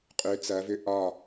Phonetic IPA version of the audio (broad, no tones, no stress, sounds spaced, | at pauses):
qʼ ʏ t͡s ɐ v ʏ ʔ ɒ